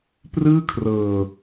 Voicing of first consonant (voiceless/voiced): voiceless